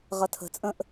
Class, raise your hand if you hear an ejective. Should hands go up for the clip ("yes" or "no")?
yes